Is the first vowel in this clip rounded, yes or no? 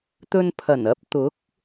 yes